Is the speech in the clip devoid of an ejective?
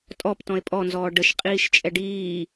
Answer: no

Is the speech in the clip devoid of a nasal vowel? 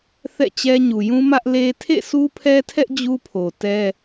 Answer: no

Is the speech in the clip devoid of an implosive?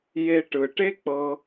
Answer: yes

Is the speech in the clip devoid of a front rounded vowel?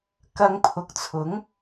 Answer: yes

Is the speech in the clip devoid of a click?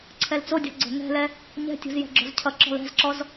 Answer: no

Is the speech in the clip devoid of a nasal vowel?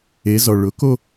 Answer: yes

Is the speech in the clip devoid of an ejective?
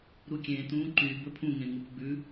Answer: yes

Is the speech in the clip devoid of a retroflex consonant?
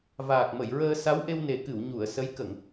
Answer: yes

